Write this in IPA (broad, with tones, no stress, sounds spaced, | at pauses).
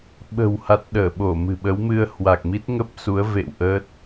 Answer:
ɓ ə̤˨˩ w h a˨˩ t̚ ɗ əː˧˩ ɓ o˧˩ m ɨ̤˨˩ ɓ ə˨˦ w m ɨ˧ ə̯ h w a˨˩ k̚ m i˦˥ t̚ ŋ ə˦˥ p̚ s u˨˦ ə̯ v ḛ˧˨ w ʔ ə˦˥ t̚